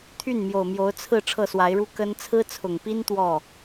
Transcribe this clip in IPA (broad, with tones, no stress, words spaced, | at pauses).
t̪ʰy˥˩nmjo˨˩ʊ̯mjo˧˥ʊ̯ t͡sʰɹ̩˥˧ ʈ͡ʂʰɤ˥˩swa˧˥ɪ̯ɻu˥ kə˥n t͡sʰɹ̩˥t͡sʰʊ˨˩ŋpi˥n t̪wɔ˥˩